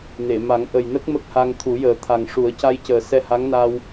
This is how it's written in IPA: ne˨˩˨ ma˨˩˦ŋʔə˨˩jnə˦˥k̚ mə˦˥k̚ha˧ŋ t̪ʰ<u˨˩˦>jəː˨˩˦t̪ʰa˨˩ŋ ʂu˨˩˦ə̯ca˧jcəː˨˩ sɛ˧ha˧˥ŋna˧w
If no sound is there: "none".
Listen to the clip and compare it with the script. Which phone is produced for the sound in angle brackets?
u˨˩˦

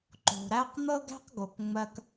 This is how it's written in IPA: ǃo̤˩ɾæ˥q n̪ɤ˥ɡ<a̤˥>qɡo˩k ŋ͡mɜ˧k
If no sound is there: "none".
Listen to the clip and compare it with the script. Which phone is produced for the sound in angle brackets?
æ̤˥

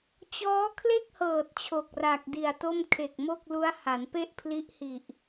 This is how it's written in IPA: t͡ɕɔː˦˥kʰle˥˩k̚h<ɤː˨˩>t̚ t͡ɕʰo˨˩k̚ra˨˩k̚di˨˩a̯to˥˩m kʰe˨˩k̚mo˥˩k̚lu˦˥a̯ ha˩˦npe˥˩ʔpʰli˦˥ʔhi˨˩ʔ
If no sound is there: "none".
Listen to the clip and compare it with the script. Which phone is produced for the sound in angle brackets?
ɤː˨˩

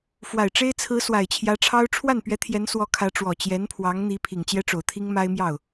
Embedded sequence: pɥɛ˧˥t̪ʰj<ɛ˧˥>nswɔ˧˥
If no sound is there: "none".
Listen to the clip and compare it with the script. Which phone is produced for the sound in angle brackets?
ɛ˧˥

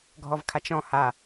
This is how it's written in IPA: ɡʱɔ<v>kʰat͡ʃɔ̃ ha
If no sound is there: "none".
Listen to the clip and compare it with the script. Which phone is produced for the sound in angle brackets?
v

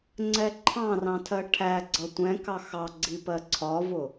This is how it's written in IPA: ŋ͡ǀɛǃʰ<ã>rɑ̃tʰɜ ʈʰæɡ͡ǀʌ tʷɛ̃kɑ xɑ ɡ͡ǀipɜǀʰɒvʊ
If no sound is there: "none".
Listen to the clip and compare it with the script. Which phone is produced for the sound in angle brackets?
ɑ̃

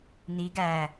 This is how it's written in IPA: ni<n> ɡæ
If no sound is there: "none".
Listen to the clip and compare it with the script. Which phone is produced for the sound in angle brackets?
none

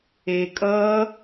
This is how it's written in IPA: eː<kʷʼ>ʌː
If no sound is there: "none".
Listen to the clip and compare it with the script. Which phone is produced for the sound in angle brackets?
kʼ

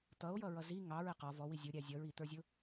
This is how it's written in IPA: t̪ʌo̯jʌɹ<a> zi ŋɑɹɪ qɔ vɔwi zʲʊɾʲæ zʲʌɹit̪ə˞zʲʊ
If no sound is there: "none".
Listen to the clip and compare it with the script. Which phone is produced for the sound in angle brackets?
ʌ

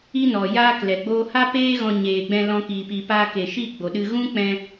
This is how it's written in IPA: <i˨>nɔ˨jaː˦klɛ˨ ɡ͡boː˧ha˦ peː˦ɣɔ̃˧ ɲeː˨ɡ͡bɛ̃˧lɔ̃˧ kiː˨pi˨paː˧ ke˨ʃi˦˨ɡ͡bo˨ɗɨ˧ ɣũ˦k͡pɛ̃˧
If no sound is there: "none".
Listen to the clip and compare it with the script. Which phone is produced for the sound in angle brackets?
i˦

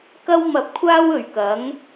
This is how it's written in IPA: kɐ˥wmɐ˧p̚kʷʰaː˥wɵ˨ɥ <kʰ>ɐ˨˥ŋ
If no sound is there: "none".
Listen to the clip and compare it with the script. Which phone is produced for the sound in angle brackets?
k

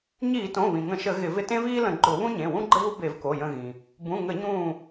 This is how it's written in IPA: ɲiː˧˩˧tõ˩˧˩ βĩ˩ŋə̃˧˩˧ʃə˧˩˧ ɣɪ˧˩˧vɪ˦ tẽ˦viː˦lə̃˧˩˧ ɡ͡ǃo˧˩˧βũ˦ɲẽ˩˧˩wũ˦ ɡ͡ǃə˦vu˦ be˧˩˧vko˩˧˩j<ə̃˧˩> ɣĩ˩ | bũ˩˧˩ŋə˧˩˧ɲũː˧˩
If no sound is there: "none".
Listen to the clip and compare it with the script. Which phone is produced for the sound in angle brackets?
ə̃˧˩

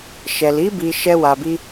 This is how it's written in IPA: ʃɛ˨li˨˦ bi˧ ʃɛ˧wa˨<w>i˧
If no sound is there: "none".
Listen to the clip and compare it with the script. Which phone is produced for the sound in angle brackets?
b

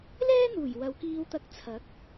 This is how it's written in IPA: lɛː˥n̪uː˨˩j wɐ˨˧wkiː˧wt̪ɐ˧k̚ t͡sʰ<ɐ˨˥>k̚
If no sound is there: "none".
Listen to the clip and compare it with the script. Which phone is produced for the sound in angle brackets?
ɐ˨˥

